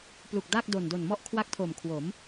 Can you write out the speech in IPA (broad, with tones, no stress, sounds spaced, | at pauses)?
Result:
p l u˨˩ k̚ d aː˥˩ k̚ d o˨˩ n d o˨˩ n m ɔ˥˩ ʔ kʰ w a˥˩ k̚ tʰ o˨˩ m kʰ w o˩˦ m